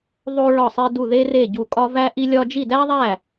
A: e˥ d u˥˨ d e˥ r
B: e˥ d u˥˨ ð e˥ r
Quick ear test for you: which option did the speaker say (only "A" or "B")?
B